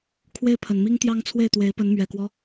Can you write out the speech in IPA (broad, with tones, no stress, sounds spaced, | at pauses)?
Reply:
kʰ w e˥˩ ɪ̯ pʰ ə˨˩ n m i˥ ŋ t̪ j ɑ˥ ŋ t͡sʰ w e˥˩ ɪ̯ t̪ w e˧˥ ɪ̯ p ə˧˥ n m ɥ ɛ˨˩ k w ɔ˦